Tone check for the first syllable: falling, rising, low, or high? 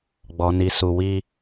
low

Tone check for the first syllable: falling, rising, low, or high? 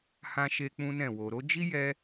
high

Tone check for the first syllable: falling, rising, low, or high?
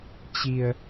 low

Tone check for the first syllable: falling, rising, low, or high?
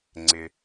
low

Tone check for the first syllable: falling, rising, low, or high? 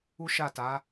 high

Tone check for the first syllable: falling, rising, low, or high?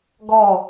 falling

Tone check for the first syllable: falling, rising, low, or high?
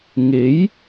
rising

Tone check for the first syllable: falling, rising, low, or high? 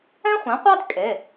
high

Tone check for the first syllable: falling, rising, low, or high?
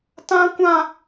high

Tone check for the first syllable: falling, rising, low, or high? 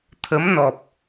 rising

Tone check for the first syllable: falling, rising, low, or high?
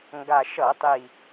low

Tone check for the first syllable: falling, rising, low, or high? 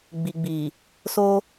low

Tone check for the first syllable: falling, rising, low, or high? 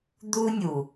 high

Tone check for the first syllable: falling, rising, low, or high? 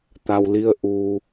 low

